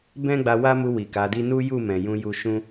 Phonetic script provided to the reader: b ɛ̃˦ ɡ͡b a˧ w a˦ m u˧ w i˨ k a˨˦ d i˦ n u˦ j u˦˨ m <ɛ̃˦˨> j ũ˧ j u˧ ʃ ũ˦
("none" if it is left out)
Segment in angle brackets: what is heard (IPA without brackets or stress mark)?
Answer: ɛ̃˨